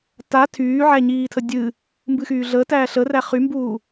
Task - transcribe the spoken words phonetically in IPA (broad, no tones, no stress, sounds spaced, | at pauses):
t a tʰ yː ʕ æ ɲ iː tʰ ə dʲ ɨ | m b ɨ x yː ɮ ə t æː ɬ ə r æ χ y m b uː